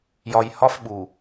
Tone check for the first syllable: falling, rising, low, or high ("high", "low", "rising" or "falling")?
low